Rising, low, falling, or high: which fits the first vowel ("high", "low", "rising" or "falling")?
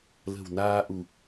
low